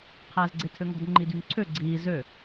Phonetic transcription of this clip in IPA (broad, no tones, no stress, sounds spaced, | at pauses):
qʰ æː z ɡ͡ǀ e tʰ ø ŋ ɔ̤ d ŋ͡ǃ i d y ŋ ǀʰ ø ɡ͡ǀ iː z ø